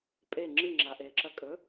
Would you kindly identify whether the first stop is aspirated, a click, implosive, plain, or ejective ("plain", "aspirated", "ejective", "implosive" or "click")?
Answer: ejective